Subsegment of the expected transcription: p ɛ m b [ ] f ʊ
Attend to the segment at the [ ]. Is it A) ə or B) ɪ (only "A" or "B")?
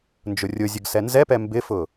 B